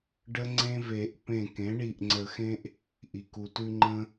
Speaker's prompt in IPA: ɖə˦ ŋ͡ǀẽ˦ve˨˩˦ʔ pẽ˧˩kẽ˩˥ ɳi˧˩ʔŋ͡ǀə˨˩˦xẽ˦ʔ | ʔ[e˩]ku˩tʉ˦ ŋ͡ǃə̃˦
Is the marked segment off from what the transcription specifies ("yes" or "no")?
yes